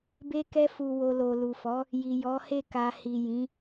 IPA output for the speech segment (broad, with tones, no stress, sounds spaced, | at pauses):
b e˧ k ɛ˧ f u˨ w o˨ l o˨ l u˨ f ɔ˨˦ | j i˨ j ɔ˨˦ h e˦˨ k a˧ h i˨ j ĩ˨˦